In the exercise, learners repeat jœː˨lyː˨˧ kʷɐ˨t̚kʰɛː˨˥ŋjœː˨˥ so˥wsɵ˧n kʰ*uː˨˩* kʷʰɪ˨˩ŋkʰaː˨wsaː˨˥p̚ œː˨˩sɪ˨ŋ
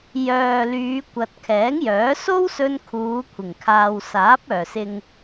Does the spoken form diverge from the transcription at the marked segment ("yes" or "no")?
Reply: yes